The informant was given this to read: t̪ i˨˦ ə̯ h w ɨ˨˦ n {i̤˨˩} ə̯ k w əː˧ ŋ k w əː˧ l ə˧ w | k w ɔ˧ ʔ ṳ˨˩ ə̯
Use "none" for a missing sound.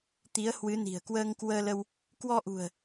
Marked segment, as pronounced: i̤˨˩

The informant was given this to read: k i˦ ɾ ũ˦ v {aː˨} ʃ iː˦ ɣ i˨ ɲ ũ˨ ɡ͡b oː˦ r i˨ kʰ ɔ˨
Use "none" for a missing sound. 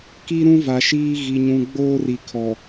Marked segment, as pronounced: a˨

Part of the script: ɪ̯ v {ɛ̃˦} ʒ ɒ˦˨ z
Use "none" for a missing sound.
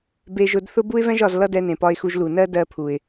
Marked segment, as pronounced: ɛ̃˦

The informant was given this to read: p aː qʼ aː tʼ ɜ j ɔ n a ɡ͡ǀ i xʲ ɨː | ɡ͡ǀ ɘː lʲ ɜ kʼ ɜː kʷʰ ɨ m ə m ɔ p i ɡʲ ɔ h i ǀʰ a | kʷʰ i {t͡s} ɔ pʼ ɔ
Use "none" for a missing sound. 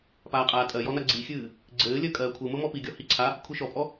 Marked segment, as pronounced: ʃ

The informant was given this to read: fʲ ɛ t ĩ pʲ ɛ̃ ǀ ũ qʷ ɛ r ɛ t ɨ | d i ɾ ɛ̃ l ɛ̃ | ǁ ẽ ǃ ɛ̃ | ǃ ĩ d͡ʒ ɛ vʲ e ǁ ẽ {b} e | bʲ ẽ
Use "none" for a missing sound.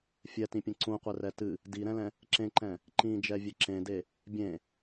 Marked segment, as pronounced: d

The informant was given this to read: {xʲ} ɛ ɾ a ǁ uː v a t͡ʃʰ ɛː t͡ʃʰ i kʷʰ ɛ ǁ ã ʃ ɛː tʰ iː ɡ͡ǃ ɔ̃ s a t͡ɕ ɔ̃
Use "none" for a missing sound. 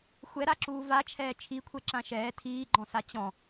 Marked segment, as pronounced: xʷ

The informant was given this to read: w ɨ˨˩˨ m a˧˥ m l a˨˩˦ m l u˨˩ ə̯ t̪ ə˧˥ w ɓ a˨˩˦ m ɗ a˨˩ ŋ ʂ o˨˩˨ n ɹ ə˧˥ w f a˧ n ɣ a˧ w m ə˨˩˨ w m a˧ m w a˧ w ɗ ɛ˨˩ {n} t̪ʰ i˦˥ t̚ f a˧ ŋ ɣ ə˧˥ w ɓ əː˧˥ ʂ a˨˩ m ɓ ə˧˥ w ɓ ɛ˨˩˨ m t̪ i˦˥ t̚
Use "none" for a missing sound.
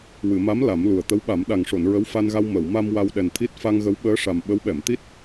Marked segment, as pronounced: n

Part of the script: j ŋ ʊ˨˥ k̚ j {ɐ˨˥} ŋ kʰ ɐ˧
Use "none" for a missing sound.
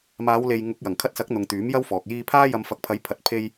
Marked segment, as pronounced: ɐ˨˩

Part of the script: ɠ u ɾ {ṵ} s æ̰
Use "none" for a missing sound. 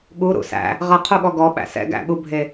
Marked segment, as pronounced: ṵ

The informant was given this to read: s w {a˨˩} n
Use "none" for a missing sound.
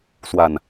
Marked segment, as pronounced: a˨˩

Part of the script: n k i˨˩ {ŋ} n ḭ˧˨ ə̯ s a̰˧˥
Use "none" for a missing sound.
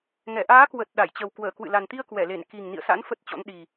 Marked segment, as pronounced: ŋ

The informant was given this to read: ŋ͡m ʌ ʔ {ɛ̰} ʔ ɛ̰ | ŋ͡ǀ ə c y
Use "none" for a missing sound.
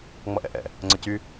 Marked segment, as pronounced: ɛ̰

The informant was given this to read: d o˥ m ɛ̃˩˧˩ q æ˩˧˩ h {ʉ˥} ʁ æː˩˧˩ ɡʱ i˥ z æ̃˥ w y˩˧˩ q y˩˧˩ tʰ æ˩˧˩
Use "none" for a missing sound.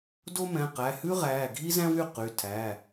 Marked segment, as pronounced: ʉ˥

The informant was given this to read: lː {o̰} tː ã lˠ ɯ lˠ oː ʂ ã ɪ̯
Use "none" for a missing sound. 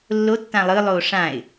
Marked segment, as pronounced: o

